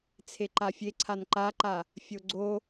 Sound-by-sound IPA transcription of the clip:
t͡sʰeǃafʲeǀʰan ǃaǃa | fʲoɡ͡ǀo

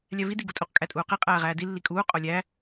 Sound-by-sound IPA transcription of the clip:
lʲævidi ɡutʼuq kʼætʼuːqe qʼæːʁæːdi lːikʼuː qʼolʲæ

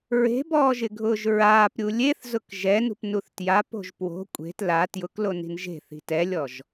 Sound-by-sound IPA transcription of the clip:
ɹe̤bɔːʒɪɡʱʊːʒ ɹaːpɾʲu lʲeθzʊk ʒɛnṳpnuθ tjapo̤ʒ pwo̤ kʷʼe̤t la tjʊkloni̤n ʒe̤θi̤ tɛlʲɔʒ

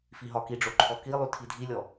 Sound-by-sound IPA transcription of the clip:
fiɦɒkiɖ͡ʐo ǃʰɔkilˠy tʰidʱilʲɔ

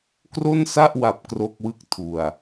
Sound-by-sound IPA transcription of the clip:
kro˥˩nsa˥˩ʔwa˨˩p̚ kro˥˩k̚wɯ˥˩k̚tʰu˨˩a̯

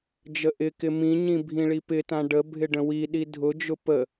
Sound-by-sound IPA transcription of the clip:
d͡ʒəʔɪkɪ mĩɲĩ bʱĩɭipɪtã ɖəbʱɪ ɖə̃wiɗi dʱʊd͡ʒʊ pə

